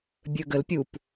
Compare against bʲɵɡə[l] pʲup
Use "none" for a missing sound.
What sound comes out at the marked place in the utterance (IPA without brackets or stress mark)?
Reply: l